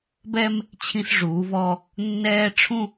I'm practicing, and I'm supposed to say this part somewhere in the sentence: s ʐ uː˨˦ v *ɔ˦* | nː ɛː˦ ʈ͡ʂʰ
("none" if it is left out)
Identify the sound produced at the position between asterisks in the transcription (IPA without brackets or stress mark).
ɔ˦